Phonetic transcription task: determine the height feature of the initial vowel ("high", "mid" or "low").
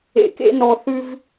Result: mid